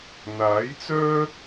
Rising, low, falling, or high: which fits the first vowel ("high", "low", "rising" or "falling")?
rising